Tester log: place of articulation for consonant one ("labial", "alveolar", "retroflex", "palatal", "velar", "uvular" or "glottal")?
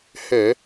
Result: glottal